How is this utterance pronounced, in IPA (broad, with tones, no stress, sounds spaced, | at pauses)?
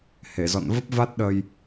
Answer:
h e˧˩ z ɔ̰˧˨ n v ə˦˥ p̚ v a˦˥ t̚ ɗ ə˧ j